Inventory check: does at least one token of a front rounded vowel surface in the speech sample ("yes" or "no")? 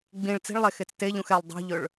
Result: no